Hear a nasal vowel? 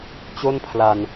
no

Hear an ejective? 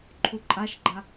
yes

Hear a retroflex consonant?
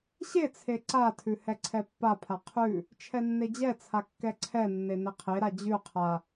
no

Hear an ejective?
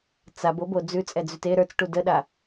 yes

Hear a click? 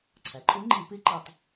yes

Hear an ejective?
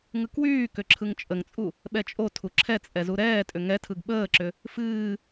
yes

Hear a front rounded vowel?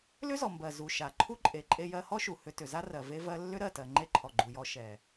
yes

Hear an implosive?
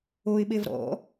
yes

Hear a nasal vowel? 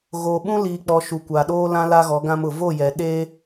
yes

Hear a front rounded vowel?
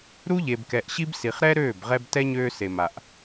yes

